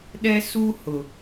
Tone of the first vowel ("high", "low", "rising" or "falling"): high